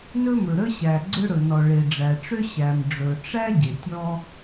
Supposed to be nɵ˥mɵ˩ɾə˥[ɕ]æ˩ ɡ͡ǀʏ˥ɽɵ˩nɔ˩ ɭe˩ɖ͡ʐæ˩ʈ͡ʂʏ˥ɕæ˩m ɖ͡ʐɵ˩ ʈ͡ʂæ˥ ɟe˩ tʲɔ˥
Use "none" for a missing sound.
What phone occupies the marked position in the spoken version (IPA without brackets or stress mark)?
ɕ